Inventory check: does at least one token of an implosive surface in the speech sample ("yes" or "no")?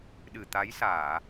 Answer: yes